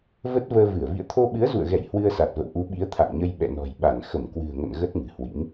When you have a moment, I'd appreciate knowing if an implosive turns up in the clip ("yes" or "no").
yes